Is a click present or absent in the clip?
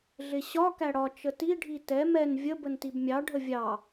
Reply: absent